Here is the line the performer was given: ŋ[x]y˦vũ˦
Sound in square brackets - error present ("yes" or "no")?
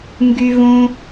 yes